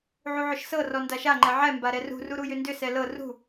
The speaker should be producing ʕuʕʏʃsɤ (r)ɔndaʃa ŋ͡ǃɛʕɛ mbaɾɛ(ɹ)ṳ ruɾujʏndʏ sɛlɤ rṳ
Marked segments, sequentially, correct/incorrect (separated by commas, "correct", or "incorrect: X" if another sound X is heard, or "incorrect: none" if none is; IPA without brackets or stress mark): correct, incorrect: r